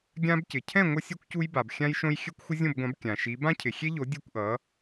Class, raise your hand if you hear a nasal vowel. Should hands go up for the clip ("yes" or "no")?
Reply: yes